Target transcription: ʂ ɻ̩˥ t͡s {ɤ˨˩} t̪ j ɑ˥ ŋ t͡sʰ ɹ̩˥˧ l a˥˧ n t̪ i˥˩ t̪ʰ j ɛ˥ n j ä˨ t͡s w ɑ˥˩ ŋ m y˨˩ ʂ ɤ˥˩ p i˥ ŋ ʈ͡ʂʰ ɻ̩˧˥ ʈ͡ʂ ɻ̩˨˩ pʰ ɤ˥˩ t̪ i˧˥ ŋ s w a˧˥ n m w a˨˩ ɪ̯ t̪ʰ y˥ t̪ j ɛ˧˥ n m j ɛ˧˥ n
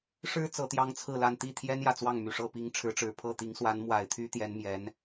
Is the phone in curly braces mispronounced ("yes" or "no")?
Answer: yes